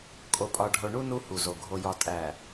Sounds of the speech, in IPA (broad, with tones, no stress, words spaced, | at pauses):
kʼo˨pʼɒ˨ɖʱo˨ɳu˦ nu˦hu˨zo˨ ɡʱo˨jɒ˨ tʼæ˨